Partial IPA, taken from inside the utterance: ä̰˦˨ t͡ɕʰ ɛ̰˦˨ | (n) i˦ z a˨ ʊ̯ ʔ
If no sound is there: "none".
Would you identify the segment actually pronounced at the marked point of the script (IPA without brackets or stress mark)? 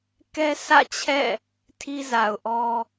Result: tʰ